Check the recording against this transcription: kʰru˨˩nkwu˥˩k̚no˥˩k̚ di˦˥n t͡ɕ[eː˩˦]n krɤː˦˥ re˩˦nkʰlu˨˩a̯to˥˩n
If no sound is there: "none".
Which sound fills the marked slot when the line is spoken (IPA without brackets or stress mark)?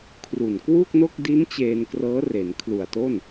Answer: eː˧